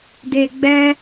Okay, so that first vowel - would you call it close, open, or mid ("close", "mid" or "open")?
mid